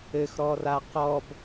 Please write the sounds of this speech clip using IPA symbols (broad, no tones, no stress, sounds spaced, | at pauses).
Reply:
ɘ x ɾ ɔ r a q ɔ b